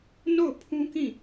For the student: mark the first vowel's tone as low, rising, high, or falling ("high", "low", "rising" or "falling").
falling